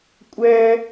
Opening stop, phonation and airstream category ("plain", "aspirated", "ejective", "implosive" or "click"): ejective